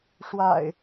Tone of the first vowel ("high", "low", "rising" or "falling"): low